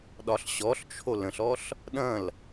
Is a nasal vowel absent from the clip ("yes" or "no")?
no